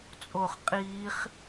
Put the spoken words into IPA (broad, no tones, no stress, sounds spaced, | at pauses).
t͡sʼ o χ qʼ iː χ